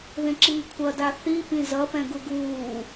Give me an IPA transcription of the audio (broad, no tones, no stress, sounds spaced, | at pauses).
ð ẽ ǁ iː kʷʰ ʌ d a θ i p ĩ z ʌ p ɛ̃ ɡ u ɡ uː